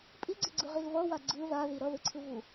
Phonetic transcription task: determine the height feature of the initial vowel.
high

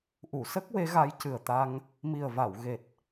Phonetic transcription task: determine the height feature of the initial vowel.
high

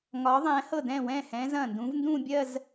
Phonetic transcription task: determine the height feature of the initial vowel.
low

